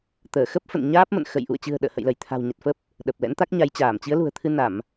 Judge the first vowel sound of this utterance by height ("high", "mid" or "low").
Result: mid